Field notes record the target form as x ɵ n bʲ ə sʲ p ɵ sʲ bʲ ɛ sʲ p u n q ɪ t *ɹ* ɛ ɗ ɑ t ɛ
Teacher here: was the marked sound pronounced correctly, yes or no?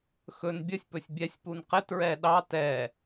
yes